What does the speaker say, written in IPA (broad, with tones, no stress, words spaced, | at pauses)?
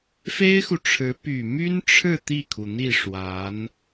fe˥ɪ̯xu˨ʈ͡ʂʰɻ̩˧˥ py˨˩my˥nʈ͡ʂʰɻ̩˥˧ t̪i˥˩kʰu˩n̪i˥˩ ʂwa˧˥n